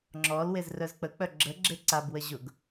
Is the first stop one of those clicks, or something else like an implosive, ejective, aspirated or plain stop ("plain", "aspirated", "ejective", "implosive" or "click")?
click